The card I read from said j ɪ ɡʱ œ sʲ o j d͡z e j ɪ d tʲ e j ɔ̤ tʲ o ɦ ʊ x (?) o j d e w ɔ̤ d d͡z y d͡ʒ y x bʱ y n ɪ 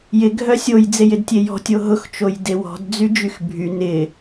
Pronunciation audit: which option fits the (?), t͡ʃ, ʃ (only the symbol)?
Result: t͡ʃ